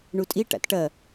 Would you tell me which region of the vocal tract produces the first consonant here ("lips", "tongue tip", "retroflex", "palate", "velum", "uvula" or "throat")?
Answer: retroflex